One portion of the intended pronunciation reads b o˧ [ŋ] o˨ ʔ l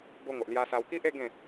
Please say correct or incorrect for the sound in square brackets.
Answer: correct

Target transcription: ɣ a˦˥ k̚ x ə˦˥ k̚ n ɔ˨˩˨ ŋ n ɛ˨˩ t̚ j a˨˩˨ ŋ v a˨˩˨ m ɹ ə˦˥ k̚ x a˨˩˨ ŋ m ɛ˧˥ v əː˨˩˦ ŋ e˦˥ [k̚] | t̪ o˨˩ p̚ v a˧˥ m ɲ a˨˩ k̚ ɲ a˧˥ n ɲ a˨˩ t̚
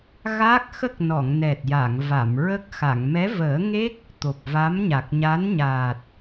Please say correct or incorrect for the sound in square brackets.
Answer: correct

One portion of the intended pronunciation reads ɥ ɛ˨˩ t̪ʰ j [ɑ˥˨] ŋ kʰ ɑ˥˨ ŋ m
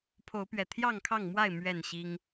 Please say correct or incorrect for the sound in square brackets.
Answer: correct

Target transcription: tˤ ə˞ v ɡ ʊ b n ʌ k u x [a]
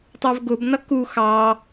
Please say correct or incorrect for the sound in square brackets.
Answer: incorrect: ɑ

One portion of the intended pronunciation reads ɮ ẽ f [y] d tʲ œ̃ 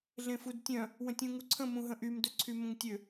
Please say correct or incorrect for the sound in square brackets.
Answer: incorrect: u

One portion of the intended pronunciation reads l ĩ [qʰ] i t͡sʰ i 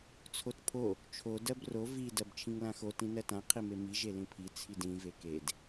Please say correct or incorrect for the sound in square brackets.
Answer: incorrect: pʰ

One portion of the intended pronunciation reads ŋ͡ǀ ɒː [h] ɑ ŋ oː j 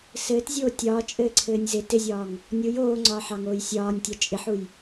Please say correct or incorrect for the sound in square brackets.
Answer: incorrect: ħ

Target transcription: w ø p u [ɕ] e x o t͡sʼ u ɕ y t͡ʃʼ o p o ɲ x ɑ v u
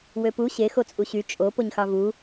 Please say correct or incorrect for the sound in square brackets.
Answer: correct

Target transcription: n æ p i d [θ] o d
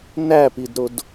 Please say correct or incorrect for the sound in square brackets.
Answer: incorrect: ɾ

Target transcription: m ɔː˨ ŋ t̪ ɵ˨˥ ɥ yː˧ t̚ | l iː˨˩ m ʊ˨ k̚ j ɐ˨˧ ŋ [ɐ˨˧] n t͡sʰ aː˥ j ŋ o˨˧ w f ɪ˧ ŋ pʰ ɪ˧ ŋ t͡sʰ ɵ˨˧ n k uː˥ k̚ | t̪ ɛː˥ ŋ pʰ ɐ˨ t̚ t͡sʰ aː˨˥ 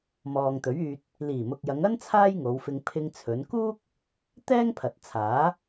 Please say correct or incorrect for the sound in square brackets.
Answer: incorrect: ɐ˥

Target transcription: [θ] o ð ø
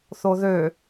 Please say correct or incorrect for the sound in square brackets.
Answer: correct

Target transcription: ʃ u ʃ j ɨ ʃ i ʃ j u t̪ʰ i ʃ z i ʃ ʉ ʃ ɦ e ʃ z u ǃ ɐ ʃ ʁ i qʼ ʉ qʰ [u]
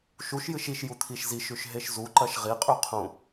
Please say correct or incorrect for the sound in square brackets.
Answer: incorrect: ũ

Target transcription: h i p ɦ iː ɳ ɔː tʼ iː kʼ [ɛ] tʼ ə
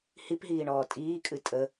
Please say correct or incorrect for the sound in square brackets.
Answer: incorrect: ɨ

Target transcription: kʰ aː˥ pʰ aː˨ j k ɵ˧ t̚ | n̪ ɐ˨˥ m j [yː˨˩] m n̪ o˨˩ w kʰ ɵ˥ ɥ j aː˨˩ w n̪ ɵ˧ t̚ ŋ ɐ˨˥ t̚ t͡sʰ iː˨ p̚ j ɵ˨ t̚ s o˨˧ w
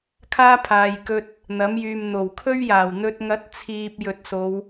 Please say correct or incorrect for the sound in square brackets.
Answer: incorrect: yː˨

